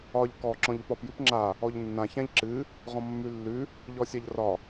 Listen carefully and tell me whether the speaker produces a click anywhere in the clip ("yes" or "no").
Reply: yes